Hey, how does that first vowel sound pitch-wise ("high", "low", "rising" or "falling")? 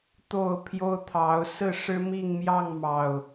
falling